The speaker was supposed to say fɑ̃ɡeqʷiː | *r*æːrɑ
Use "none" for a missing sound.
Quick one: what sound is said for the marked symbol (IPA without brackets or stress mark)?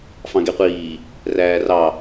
r